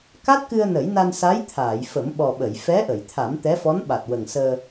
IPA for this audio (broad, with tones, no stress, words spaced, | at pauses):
ka˦˥t̚kɨ˧ə̯ nə˨˩˦jna˧nsa˧˥j t̪ʰaː˨˩˨jfə˨˩˦mɓɔ˨˩ɓə˨˩˨j fɛ˧˥ʔə˨˩˨jt̪ʰa˨˩˦m t̪ɛ˧˥fɔ˧˥nɓa˨˩t̚ wə˨˩ŋsəː˧